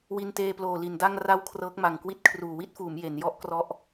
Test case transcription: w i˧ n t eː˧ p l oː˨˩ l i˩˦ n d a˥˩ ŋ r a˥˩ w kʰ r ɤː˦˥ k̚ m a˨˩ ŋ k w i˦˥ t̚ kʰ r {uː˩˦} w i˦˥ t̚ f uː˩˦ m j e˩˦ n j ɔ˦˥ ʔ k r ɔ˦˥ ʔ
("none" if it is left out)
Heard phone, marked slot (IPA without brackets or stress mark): uː˨˩